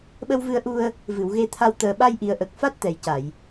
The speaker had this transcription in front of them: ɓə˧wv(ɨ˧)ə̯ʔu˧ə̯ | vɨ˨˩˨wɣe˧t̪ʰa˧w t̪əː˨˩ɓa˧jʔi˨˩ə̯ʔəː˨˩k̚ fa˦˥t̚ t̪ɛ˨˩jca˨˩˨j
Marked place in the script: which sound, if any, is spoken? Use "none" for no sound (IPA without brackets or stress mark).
ɨ˧